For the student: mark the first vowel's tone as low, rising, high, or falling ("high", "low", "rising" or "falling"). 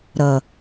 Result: low